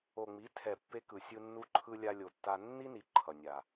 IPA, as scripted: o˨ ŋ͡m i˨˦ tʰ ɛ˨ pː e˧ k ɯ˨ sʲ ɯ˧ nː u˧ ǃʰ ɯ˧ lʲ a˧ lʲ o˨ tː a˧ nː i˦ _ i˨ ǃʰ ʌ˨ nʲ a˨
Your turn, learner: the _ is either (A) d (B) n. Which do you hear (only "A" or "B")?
B